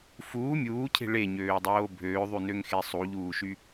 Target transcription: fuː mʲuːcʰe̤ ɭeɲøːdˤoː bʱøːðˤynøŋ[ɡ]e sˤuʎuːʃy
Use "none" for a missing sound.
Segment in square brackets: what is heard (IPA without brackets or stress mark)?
x